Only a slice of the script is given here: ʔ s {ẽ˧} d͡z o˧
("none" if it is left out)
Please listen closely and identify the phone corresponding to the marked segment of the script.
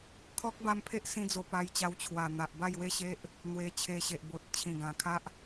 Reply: ĩ˧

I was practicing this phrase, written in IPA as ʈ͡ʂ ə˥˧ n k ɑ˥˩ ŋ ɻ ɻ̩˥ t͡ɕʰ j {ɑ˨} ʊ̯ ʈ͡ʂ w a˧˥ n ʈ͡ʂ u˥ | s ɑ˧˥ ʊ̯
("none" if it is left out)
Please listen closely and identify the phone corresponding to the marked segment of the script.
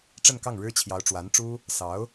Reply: ɑ˧˥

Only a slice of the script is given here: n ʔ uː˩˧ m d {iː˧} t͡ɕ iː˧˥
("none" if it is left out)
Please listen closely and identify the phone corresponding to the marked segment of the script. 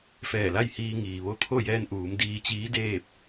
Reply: iː˧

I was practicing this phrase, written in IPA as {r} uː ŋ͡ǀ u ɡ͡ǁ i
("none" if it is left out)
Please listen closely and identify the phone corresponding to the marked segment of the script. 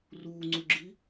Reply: r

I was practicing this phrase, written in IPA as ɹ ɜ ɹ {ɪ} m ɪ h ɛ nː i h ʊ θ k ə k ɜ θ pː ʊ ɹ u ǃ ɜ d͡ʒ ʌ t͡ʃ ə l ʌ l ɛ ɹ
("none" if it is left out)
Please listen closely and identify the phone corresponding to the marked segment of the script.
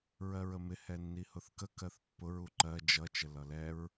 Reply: ə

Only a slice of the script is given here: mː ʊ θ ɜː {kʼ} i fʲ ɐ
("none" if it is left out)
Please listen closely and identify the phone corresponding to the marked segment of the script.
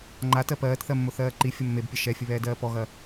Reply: ǃ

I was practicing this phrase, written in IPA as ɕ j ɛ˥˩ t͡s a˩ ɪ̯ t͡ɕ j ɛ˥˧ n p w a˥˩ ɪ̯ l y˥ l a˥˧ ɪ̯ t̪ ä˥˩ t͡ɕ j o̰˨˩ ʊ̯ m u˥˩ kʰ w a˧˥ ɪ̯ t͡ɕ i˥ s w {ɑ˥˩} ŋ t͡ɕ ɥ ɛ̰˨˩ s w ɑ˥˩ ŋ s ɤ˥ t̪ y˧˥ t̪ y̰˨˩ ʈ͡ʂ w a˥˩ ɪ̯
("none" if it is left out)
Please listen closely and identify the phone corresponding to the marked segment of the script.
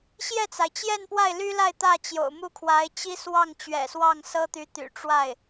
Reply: ɑ˥˩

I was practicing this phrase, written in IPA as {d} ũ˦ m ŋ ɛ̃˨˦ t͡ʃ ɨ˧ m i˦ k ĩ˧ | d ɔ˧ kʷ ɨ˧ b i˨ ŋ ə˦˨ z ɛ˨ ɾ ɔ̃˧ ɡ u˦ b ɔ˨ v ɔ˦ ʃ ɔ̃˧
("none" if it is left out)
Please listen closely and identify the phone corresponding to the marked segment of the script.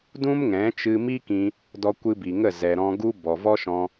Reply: d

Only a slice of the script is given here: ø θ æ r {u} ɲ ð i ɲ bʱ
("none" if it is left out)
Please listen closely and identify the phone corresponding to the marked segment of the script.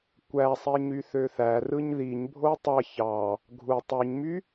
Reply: ɯ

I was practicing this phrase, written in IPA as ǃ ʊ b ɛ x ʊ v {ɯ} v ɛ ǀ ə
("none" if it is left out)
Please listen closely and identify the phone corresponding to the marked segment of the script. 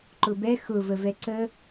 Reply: ə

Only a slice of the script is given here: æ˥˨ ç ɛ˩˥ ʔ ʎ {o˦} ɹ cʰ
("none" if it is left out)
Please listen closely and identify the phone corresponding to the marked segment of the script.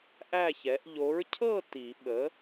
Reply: o˩˥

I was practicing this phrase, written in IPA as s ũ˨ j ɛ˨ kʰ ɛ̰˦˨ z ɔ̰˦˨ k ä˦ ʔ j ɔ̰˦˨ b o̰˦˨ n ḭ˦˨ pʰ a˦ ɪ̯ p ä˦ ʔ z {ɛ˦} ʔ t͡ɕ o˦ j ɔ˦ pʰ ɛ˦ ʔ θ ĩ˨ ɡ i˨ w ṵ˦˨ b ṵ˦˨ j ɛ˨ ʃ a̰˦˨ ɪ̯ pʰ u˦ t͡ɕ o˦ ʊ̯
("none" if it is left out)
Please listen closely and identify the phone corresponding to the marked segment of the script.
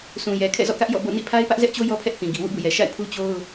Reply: ɛ˦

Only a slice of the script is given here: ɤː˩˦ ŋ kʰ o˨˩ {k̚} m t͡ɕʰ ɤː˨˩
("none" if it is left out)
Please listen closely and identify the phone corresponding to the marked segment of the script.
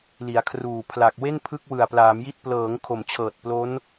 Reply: none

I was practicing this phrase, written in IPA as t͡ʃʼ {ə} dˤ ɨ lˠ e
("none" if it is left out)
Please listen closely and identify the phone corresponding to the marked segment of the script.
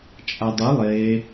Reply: a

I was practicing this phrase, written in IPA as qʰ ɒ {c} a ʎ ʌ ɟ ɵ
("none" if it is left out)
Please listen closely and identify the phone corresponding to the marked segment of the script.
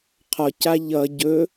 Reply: c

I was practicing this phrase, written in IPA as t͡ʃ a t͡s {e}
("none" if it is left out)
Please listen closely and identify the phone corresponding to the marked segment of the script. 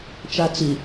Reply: i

